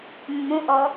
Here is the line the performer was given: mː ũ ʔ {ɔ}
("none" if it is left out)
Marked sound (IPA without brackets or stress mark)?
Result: ɔ